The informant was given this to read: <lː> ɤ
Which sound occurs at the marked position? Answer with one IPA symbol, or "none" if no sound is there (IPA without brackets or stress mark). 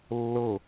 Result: lː